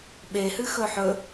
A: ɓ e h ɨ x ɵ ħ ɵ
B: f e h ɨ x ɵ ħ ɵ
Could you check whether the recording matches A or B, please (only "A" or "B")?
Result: A